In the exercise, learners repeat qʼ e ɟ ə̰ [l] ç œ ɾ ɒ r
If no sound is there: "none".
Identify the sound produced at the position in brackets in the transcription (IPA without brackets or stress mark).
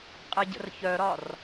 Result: r